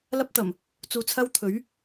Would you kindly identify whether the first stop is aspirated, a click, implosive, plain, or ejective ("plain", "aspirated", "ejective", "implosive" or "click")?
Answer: plain